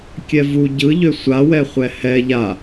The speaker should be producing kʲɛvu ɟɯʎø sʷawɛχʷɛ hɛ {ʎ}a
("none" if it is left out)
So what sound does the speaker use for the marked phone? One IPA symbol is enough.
ʎ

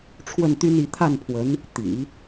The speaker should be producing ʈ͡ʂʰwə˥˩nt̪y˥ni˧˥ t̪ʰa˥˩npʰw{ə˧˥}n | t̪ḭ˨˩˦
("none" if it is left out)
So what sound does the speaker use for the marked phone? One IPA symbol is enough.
ə˧˥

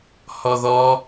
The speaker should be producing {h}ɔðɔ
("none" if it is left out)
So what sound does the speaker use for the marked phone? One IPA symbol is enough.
h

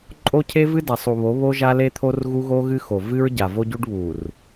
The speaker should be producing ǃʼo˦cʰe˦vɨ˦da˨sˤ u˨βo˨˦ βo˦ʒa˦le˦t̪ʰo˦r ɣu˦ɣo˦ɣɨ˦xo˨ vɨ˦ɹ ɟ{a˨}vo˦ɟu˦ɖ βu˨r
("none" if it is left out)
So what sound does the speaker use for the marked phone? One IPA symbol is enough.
a˨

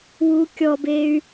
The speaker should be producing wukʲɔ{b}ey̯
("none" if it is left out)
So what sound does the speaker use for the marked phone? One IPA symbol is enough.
b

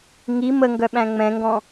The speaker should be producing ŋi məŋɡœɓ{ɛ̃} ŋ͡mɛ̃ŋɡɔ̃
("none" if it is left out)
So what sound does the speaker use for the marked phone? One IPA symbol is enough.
æ̃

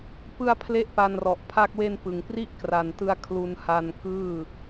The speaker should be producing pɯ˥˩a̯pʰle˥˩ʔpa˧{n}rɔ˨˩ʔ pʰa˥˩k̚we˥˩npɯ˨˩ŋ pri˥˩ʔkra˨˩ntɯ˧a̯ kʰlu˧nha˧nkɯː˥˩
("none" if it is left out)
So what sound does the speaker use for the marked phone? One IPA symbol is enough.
n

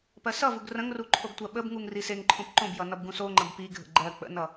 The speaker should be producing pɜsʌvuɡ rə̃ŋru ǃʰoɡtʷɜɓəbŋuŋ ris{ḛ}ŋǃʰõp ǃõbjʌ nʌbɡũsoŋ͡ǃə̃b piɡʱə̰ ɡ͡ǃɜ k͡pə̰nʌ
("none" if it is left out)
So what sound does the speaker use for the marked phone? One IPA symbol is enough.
e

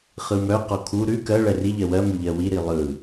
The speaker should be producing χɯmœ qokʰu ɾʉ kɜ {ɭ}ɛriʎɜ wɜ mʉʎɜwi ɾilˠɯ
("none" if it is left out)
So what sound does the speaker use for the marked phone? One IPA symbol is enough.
ɭ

